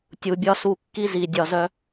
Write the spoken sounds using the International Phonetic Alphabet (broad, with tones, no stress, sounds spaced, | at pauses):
tʲ u˨ bʲ ɒ˦ s u˧ kː i˦ z i˨ dʲ ɒ˨ z œ˧